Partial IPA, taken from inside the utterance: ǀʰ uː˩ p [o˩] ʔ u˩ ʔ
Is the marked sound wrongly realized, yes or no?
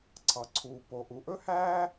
no